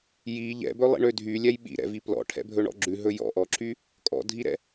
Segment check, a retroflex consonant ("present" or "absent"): present